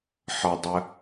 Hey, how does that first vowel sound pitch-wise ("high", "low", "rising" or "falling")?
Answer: low